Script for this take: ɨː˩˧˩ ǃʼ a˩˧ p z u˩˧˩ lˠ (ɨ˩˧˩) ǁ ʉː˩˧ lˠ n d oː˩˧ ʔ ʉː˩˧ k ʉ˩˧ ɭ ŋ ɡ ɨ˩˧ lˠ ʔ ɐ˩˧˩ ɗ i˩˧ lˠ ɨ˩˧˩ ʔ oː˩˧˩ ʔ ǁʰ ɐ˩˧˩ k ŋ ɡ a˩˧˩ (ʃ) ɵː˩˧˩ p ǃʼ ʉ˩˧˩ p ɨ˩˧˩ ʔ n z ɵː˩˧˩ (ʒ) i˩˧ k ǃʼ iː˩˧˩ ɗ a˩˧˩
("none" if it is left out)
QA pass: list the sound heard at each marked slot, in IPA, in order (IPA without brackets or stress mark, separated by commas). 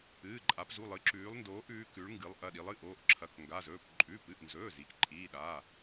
ɨ˩˧, z, z